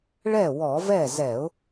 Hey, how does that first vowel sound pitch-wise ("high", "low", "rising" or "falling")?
falling